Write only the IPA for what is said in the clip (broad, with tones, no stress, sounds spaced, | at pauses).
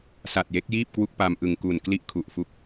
s a˨˩ t̚ j e˦˥ k̚ j iː˥˩ p̚ k w u˥˩ k̚ p a˧ m ʔ ɯ˨˩ ŋ k u˨˩ n k l i˥˩ ʔ kʰ u˨˩ ʔ f u˦˥ k̚